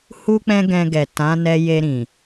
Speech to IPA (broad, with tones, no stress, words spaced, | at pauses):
hu˦k͡pɛ̃˦ɡɛ̃˧ ɡɛ˨tã˨˦ nɛ˧je˧ɾĩ˨